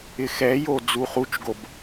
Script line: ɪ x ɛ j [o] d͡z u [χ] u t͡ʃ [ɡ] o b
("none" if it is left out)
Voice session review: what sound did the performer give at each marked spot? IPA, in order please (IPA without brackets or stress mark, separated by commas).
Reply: o, χ, ɡ